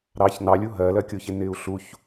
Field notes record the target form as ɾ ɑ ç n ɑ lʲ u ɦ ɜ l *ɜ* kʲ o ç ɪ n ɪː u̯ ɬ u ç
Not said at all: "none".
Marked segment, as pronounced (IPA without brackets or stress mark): ɜ